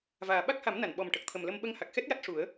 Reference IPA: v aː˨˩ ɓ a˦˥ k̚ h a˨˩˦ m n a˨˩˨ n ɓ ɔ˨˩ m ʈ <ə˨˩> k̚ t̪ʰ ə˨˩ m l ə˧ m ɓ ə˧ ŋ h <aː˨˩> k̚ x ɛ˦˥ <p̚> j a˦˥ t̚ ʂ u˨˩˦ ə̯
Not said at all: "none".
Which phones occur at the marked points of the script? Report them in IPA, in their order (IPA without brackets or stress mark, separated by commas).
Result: ə˨˩, a˨˩, t̚